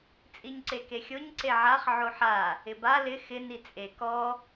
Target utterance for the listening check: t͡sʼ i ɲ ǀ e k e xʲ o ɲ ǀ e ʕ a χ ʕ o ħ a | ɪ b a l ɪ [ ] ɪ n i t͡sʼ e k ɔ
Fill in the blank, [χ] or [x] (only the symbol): x